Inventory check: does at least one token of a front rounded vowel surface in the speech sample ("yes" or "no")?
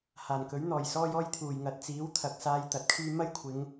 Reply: yes